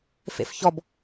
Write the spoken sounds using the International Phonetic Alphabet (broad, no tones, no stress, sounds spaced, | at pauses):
f ḛ f ç ɔ b